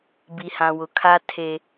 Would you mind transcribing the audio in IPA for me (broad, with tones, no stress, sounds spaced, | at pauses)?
b i˨ h ã˨ w ʊ˨ kʰ a˦ tʰ e˦